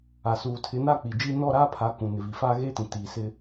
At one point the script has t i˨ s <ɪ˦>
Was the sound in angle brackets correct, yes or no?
yes